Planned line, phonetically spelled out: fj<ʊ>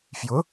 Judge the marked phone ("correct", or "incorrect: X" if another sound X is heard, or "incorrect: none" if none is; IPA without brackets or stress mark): correct